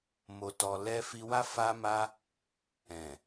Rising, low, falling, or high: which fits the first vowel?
low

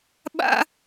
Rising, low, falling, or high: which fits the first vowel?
high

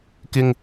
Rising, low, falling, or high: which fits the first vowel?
low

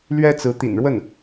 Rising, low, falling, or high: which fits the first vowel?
high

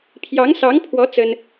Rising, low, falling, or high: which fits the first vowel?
rising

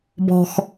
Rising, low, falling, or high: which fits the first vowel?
low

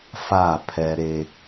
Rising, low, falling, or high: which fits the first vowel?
falling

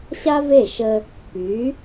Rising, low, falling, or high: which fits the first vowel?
high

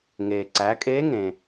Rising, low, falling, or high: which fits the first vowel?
low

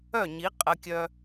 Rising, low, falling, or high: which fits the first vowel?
falling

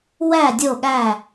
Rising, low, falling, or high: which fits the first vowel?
falling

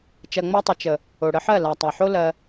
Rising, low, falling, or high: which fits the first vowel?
low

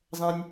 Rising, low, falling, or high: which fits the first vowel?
low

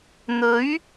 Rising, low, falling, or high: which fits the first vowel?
rising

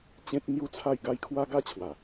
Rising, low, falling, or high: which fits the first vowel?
high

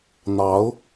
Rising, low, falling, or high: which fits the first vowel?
rising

